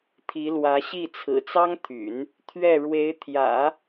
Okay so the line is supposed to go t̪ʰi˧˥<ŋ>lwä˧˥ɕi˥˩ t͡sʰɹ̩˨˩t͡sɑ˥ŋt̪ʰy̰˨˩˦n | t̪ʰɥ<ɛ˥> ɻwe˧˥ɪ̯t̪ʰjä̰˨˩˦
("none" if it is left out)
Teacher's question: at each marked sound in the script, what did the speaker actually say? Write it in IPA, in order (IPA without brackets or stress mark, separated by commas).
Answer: none, ɛ˥˩